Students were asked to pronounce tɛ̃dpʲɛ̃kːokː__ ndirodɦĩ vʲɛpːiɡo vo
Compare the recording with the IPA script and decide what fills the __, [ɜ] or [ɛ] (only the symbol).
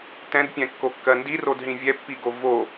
ɜ